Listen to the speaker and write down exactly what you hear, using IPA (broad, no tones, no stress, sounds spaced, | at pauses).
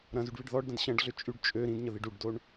ɾ ɐ̃ z y ɖ β i ɖ ð ɔ ɖ d ɐ̃ d ɕ ɐ̃ ɖ ɮ ʏ t͡ʃʼ y ɖ t͡ʃʼ ø ɾ ĩ d ɲ ə ð i ɖ u ɖ d o ɳ